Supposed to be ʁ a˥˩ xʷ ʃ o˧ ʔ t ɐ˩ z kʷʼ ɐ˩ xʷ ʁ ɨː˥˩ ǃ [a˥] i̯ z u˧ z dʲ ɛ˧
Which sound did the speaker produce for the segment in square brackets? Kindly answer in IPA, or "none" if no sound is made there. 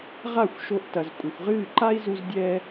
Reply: a˥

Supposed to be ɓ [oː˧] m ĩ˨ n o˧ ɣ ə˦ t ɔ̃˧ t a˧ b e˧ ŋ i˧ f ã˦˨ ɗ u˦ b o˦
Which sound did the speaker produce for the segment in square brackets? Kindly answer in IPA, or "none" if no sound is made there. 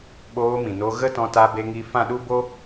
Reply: oː˧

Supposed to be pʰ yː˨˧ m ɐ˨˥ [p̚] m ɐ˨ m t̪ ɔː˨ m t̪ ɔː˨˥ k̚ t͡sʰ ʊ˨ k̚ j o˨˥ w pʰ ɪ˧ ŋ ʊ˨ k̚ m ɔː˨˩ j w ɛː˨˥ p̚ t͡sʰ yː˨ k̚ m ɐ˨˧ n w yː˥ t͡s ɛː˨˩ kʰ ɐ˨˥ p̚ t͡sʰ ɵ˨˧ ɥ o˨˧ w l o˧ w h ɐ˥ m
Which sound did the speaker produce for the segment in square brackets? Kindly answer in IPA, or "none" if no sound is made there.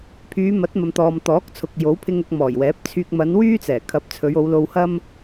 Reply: t̚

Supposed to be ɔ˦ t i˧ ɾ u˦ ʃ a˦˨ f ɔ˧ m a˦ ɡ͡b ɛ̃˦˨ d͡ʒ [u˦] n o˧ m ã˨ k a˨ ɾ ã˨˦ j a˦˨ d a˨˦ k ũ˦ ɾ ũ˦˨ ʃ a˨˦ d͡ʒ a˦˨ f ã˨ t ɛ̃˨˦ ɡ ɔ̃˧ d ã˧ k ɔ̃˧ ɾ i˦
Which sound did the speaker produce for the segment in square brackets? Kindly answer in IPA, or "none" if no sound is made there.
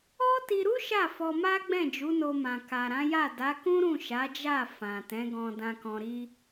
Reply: u˨˦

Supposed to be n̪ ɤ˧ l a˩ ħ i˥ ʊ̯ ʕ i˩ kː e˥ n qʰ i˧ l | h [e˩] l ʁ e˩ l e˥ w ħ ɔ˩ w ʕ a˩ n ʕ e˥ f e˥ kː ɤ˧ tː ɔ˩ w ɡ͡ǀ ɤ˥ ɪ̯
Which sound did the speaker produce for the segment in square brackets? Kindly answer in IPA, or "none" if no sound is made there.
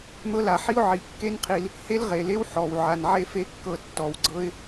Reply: e˥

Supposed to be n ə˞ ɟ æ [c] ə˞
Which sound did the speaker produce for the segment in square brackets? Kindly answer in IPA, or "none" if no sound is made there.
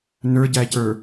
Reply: c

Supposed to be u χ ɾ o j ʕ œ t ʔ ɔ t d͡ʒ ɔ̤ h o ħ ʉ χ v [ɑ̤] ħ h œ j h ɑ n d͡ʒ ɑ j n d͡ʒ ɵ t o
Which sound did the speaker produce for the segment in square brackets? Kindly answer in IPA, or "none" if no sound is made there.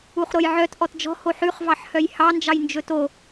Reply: ɑ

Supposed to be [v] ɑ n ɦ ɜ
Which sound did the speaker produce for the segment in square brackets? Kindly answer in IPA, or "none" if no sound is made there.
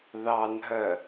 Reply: ð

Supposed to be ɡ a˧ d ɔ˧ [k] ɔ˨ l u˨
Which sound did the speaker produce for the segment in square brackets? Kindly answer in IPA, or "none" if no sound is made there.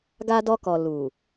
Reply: k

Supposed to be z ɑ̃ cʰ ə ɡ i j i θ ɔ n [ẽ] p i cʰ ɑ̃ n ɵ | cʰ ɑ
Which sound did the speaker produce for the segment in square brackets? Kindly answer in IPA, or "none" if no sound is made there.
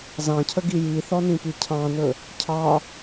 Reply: ĩ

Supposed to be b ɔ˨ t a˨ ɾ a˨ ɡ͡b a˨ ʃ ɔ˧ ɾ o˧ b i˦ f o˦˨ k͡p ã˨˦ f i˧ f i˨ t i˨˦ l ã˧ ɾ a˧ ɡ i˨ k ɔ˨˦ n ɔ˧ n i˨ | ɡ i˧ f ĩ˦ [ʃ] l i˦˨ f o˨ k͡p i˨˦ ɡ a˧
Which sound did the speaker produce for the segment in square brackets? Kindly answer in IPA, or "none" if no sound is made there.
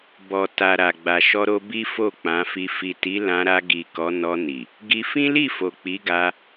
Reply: none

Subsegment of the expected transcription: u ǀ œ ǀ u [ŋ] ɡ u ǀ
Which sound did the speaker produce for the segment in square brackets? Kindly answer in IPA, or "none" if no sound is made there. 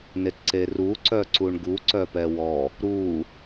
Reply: ɳ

